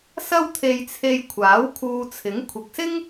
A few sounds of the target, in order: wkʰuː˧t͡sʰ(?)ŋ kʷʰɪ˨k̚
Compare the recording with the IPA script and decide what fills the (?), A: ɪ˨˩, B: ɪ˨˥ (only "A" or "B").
B